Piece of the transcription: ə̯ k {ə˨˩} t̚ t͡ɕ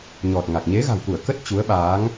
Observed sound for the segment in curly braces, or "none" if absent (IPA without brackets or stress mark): ə˦˥